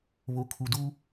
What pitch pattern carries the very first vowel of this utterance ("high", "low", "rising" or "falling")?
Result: low